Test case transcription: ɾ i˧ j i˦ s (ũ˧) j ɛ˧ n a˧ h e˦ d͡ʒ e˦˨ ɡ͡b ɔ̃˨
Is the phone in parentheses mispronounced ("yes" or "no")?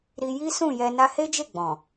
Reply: yes